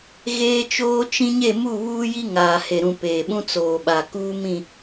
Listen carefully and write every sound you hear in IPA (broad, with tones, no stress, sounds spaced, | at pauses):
ɣ eː˦ t͡ʃ oː˦ t͡ʃ ĩ˦ ɲ e˦˨ m u˦˨ β uː˦ j i˦ ŋ aː˨ h e˨ ɾ ũ˨ p eː˨ ɓ ũ˦ t͡s oː˨ ɓ a˨ k uː˦ m ĩ˦˨